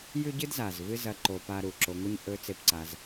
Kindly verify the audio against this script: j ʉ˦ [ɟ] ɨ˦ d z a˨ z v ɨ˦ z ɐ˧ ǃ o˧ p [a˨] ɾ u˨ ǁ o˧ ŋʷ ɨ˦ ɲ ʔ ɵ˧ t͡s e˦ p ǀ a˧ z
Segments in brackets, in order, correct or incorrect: correct, incorrect: a˦

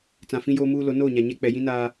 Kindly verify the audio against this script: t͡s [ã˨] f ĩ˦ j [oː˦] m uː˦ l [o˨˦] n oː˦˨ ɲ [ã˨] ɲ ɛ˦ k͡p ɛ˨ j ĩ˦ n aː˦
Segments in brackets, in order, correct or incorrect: correct, correct, correct, incorrect: a˨

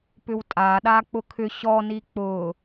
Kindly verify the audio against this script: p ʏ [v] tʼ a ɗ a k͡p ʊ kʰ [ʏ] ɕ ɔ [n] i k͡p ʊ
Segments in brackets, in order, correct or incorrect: incorrect: w, correct, correct

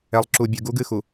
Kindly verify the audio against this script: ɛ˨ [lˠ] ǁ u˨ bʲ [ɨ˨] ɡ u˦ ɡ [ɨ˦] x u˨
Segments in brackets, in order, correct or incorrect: correct, correct, correct

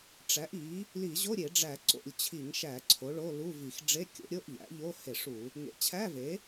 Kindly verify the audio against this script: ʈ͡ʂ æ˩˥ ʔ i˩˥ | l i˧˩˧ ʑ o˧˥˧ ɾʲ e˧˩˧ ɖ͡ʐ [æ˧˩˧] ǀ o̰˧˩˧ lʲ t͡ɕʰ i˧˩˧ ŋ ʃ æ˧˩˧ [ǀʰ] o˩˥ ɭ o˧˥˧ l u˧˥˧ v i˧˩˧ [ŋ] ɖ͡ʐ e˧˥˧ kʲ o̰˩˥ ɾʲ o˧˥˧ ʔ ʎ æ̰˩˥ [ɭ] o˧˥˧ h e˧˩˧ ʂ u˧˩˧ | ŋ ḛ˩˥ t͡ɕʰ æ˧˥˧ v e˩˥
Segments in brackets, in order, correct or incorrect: correct, correct, incorrect: x, incorrect: ʎ

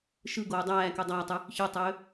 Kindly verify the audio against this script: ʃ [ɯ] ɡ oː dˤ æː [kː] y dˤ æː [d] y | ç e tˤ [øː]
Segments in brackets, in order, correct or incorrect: correct, incorrect: k, incorrect: tˤ, correct

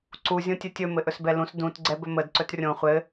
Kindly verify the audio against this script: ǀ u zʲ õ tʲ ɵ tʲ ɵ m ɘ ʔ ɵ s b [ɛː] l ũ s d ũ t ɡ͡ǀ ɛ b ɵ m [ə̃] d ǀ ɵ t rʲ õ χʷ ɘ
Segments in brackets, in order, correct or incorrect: incorrect: ɛ, incorrect: ə

